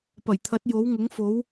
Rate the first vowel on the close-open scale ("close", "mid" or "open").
open